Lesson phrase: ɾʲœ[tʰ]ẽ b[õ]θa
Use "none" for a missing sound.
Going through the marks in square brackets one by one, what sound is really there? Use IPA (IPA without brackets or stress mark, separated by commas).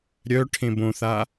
ʈʰ, õ